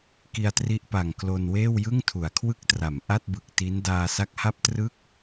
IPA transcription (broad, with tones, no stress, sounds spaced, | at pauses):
k i˧ a̯ t r i˦˥ ʔ p a˨˩ ŋ k l o˧ n w eː˥˩ w j ɯ˥˩ ŋ tʰ u˩˦ a̯ kʰ w ɯ˥˩ k̚ t r a˩˦ m ʔ a˥˩ t̚ b ɯ˨˩ k̚ t i˦˥ n d aː˧ s a˦˥ k̚ h a˥˩ p̚ t r ɯ˥˩ k̚